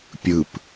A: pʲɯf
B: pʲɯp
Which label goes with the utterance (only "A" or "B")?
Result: B